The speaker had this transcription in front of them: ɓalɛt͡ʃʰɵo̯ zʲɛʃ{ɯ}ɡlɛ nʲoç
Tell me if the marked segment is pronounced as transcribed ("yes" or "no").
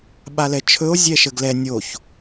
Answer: no